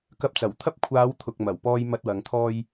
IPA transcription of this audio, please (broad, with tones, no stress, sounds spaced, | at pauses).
k ɐ˧ p̚ t͡s ɐ˨˩ w t̪ʰ ɐ˥ p̚ kʷʰ aː˨˧ w t̪ʰ ʊ˨ k̚ m ɐ˨˩ w p ɔː˧ j m ɐ˧ t̚ w ɐ˨˧ ŋ t̪ʰ ɔː˧ j